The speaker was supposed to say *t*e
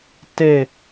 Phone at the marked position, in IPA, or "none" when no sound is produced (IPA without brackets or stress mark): t